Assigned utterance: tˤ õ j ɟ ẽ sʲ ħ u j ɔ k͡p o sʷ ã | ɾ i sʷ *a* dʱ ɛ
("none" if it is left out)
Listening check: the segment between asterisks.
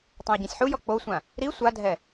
a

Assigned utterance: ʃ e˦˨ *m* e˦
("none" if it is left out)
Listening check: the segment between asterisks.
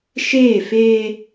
f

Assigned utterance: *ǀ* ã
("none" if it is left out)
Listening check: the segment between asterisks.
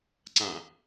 ǀ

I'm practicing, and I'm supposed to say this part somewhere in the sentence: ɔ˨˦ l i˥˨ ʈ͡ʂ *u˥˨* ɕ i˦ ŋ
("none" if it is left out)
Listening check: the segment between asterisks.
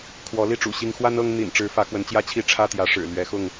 ṵ˨˩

